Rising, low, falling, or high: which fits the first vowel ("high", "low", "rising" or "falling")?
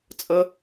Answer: high